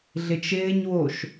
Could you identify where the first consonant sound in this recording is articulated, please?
alveolar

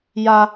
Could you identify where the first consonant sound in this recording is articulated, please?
palatal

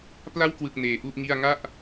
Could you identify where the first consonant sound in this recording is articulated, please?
labial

